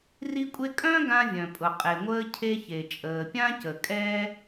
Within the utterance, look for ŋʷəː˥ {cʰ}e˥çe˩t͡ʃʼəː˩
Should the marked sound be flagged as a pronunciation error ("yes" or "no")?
no